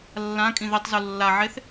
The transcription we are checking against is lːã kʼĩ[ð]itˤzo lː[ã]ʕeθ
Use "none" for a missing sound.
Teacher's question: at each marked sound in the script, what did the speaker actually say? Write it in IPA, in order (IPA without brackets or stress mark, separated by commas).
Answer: ð, a